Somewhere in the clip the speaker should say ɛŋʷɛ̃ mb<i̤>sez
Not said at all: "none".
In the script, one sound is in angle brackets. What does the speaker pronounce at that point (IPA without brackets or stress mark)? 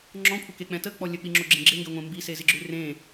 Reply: i